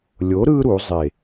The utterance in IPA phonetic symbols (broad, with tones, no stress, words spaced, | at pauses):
lʲo˨˥ɾɯ˦ ɾu˩˧zˤe˨˩